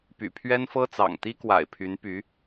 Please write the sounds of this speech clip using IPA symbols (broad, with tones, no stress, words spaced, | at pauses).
py̰˨˩pʰɥɛ˥nfɤ˥t͡sɑ̰˨˩ŋ t̪i˥kwa̰˨˩ɪ̯pʰy˧˥npy˧˥